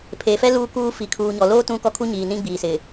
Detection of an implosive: absent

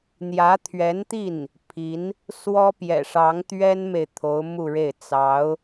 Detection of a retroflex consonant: present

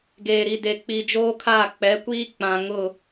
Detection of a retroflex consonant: absent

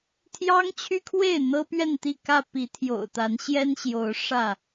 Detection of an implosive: absent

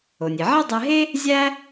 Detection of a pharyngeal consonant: present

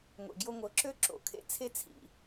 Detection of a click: present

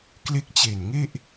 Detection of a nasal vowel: absent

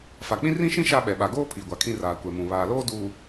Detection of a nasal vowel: present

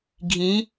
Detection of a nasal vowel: present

